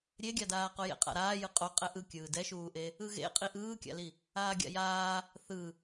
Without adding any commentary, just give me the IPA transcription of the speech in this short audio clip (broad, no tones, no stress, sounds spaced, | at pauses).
ɾʲ e ɡʲ a d aː q o j ḛ qʼ a̰ ɾ aː j ɯ qʼ o qʼ ɛ ʔ ɯ kʲ ɯː d ɛ ʃ uː ʔ e | ɯ ɣ ḛ qʼ i ʔ ɯː kʲ a̰ l i | aː ɡʲ a̰ j aː | θ ɯ